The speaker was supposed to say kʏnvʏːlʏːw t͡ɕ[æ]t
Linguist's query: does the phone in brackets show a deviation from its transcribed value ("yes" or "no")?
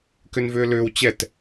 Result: yes